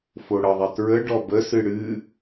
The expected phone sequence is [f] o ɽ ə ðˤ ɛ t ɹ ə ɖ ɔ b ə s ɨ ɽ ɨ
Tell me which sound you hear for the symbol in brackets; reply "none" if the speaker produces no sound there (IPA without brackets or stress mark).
f